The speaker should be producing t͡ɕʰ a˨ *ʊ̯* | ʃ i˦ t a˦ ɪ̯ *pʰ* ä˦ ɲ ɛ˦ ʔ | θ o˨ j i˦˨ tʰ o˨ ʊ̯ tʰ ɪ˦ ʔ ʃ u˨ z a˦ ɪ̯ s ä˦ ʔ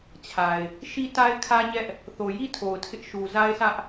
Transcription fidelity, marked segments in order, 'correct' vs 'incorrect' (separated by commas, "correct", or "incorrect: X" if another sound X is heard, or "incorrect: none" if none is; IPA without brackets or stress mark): incorrect: ɪ̯, incorrect: kʰ